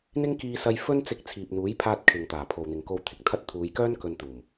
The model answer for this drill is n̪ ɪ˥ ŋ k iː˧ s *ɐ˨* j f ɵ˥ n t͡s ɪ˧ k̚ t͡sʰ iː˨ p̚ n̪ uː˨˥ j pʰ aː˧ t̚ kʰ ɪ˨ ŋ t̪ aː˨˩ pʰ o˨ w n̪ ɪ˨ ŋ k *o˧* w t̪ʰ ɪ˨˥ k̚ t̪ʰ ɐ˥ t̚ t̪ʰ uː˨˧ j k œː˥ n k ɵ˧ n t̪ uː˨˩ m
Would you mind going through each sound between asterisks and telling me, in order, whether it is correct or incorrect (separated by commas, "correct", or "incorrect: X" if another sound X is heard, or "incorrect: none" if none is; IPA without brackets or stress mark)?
incorrect: ɐ˧, correct